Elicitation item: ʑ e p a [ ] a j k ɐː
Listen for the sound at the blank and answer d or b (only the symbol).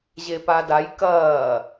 d